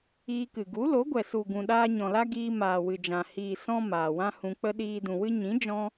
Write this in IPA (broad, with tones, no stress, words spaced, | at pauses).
iː˧kɨ˨ ɡu˨˦lo˨˦ɡʷɛ˨ su˨ ɡũ˨ɗaː˧ɲɔ̃˨la˦ ɡiː˧ maː˨wɨ˨d͡ʒã˨ hiː˨ sɔ̃˧ maː˨wã˦hũ˧k͡pə˦ ɗiː˧ dũ˨wɨ˦ ɲĩ˨˦ d͡ʒɔ̃˦